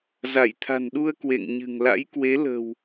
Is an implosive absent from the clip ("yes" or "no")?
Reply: no